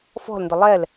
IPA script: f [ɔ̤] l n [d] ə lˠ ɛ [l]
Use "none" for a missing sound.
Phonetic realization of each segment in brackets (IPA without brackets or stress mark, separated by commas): ɔ̤, d, l